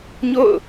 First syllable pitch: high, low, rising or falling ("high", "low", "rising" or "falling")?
falling